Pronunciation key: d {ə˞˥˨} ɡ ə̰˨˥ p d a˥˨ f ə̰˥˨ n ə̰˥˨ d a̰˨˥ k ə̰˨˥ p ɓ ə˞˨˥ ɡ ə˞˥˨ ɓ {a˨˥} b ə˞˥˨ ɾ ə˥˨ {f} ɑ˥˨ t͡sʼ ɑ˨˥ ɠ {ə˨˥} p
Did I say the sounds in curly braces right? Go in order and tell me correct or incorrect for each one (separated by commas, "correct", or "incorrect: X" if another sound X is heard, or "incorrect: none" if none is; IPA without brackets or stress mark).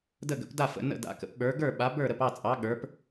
incorrect: ə˥˨, correct, incorrect: p, incorrect: ə˞˨˥